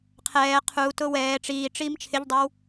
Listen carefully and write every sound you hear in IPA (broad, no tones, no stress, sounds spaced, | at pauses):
qʰ ɛː qʰ u t ʊ w ɛː ʈ͡ʂ iː ʈ͡ʂ iː m t͡ʃʰ ɪ ʎ dˤ e w